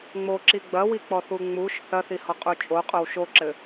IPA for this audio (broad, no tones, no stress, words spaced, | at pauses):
ŋ͡moǁi ɡ͡bɐwik͡pɔθu ŋ͡muʃ θɐθihɔqʼu t͡ʃʼoqʼow ʃoǁɘ